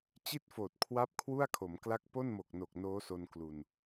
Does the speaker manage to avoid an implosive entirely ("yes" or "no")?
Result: yes